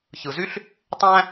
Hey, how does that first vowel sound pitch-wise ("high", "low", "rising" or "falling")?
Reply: low